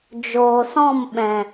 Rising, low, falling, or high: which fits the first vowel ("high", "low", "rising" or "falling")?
low